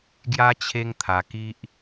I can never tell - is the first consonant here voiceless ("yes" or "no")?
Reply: no